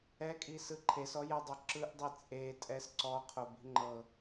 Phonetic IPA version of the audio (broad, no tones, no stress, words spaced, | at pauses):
ɛkʼisɯ ǃʰesɔjɛdˤo ǁɯʔdˤi t͡sʼetʼɛs ǀɔqʰobi̤ ŋ͡ǃɤ